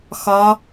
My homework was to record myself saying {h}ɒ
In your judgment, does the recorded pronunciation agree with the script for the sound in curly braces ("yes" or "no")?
no